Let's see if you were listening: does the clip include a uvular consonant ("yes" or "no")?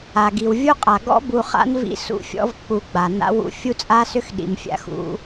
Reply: yes